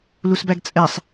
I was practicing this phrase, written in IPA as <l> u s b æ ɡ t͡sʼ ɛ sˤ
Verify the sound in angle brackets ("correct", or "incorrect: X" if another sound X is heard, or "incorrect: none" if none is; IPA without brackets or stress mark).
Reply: correct